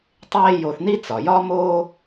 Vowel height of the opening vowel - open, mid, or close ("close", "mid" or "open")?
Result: mid